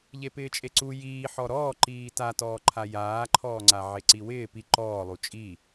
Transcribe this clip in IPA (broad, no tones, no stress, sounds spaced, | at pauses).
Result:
ʎ e p ɪː t͡ʃʼ e ǀ u j iː ħ ɔ ɾ ɔː ǃ iː t a t ɔː ǃʰ a j aː ǃʰ ɔː ŋ͡ǀ a ʕ e ǀ i w ɪː p i ǃ ɔː lˠ u t͡ʃʼ i